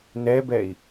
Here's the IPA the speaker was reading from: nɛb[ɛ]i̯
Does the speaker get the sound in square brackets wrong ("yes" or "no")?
no